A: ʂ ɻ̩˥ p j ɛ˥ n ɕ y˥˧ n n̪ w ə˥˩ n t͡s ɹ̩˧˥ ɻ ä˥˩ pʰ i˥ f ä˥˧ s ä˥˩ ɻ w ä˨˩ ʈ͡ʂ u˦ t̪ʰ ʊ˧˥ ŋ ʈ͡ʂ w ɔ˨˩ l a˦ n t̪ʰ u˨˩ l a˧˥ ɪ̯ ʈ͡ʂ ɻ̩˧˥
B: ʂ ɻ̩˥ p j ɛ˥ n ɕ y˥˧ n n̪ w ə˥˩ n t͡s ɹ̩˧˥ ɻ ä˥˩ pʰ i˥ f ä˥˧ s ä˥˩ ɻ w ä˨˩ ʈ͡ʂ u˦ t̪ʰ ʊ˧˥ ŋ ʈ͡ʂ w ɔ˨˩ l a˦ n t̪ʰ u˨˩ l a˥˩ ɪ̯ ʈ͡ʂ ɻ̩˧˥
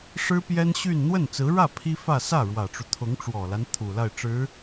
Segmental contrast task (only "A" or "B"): B